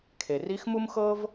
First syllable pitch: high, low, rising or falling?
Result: low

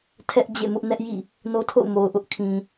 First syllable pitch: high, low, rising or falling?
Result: high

